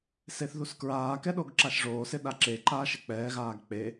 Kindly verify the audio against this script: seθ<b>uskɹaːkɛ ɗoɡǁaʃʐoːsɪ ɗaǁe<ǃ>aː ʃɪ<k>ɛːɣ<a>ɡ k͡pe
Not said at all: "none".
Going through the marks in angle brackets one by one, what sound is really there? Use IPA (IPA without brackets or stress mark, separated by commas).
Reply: ð, ǃ, k͡p, aː